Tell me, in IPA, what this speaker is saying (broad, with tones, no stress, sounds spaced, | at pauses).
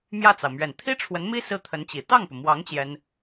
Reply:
m j ä˥˩ t͡s ɑ˩ ʊ̯ m ɥ ɛ˨˩ n t̪ʰ i˥ ʈ͡ʂʰ w ə˧˥ n m i˥ s ɹ̩˥˩ t̪ʰ ə˧˥ n t͡ɕ i˨˩ t̪ ɑ˥˩ ŋ p u˩ m w ɑ˧˥ ŋ t͡ɕ j ɛ˥ n